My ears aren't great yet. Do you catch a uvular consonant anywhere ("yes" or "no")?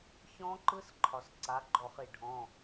yes